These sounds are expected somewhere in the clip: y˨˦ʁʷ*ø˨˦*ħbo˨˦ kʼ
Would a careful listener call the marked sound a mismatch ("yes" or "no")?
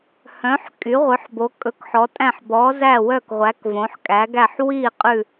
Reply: yes